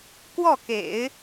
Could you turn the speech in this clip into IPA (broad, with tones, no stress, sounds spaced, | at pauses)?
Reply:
k w ɔ˥˩ k ḛ˨˩˦ ɪ̯